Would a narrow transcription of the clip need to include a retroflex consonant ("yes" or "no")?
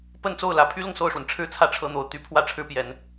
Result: yes